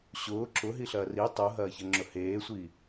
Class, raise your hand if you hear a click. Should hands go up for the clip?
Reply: yes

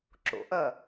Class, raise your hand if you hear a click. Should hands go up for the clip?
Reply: yes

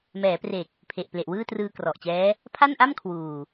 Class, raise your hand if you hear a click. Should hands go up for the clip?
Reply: no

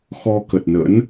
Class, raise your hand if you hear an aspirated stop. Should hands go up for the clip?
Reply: no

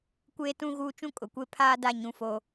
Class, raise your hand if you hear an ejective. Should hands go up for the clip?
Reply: yes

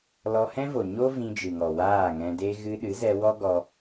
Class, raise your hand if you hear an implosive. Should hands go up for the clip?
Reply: yes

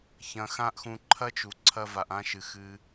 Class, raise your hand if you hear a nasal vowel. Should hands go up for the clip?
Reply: yes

